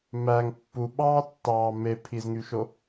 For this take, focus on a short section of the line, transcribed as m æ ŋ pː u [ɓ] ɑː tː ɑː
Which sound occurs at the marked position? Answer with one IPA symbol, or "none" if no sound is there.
ɓ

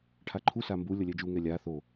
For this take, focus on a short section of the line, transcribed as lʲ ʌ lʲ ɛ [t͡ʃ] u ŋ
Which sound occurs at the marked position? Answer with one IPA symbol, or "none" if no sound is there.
d͡ʒ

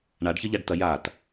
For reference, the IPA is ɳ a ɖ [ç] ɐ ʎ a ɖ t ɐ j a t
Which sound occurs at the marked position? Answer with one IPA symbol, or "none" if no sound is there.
ç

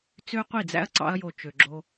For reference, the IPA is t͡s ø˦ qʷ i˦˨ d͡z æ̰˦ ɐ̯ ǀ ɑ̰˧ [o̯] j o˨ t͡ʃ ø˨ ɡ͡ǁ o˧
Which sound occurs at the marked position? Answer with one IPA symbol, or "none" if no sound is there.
ɐ̯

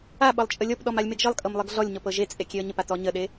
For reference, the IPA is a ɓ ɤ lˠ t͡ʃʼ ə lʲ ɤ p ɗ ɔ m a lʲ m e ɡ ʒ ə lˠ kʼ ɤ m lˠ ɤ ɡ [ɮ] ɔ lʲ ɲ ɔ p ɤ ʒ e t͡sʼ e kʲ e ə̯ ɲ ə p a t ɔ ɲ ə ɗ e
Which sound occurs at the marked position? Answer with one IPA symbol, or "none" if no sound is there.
ɮ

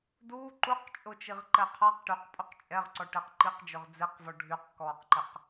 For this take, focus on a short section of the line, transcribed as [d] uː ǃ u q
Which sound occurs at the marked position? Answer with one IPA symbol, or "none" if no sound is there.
d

